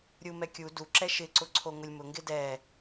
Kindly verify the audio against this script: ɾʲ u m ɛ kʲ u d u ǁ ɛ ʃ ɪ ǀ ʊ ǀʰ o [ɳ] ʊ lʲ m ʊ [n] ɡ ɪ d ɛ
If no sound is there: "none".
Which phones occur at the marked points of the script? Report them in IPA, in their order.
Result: ŋ, ŋ

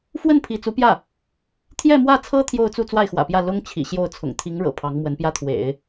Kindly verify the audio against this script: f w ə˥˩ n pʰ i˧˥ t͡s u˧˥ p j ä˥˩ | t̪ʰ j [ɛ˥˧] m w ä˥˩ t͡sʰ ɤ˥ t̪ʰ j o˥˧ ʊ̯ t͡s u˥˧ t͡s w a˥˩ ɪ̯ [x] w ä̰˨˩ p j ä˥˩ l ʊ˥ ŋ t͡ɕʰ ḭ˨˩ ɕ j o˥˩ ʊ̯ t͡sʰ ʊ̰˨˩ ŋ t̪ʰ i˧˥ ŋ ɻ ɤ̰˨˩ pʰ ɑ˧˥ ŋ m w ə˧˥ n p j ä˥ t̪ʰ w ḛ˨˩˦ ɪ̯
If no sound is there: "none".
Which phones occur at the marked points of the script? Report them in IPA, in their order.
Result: ɛ˥˧, x

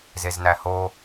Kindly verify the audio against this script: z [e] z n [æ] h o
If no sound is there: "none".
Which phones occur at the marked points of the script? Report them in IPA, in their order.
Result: e, æ

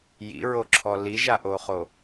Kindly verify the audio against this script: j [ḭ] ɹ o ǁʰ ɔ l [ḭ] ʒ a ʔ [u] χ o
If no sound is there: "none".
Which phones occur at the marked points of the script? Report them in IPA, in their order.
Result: ḭ, i, o

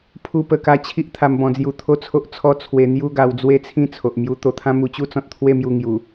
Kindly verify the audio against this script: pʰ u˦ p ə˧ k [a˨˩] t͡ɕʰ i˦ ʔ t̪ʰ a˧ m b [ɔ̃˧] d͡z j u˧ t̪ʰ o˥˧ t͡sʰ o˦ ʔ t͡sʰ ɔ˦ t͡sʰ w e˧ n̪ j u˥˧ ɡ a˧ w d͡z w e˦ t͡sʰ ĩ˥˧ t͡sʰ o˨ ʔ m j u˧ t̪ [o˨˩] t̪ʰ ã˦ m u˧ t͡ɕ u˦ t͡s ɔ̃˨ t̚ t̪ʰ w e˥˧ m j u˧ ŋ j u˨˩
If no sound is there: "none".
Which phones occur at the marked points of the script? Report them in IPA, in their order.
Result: a˥˧, ɔ̃˧, o˧

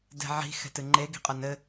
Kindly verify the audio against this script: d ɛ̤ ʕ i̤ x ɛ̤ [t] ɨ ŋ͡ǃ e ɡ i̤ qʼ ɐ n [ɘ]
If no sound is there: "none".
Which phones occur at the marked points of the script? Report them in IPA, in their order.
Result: t, ɘ

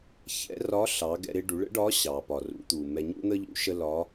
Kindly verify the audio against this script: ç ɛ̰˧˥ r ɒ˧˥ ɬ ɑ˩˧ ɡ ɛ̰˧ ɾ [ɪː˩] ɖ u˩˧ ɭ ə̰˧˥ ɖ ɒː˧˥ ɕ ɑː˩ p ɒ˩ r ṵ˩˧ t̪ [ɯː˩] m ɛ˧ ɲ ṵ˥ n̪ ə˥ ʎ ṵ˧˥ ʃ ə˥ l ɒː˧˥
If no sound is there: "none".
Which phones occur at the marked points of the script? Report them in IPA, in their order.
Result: ɪː˧, uː˩

